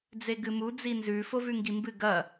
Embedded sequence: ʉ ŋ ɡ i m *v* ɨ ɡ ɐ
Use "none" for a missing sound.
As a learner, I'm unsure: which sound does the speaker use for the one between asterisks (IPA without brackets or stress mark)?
b